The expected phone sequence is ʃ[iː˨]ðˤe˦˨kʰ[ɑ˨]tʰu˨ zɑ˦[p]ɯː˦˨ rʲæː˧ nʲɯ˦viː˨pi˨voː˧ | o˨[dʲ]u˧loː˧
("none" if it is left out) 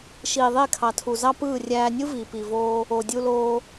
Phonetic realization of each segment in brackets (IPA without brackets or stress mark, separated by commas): iː˨, ɑ˨, p, dʲ